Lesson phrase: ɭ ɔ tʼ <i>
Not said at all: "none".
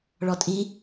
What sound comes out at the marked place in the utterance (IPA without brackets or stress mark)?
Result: i